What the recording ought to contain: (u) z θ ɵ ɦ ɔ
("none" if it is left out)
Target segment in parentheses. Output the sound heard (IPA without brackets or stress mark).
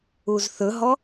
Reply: u